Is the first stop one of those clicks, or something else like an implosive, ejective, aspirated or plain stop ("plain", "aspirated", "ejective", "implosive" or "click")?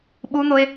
implosive